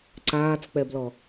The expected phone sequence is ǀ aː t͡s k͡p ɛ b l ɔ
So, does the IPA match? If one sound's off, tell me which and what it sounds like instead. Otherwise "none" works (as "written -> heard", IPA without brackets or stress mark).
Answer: none